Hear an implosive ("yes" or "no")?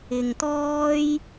no